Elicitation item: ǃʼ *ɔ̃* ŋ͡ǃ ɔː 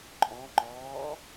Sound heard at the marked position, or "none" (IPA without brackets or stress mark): ɔ̃